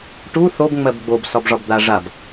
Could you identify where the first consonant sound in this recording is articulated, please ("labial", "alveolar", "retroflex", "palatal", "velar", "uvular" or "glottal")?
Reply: retroflex